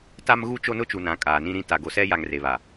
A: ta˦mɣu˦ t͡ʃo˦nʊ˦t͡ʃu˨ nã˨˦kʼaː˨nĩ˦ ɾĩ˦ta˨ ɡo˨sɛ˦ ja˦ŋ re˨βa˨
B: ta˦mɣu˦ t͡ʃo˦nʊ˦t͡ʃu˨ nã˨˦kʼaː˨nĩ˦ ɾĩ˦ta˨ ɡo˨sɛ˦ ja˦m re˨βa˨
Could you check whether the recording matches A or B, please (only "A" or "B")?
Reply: A